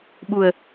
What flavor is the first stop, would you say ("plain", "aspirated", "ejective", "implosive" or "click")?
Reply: implosive